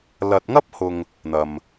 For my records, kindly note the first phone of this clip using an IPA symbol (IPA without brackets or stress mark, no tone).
l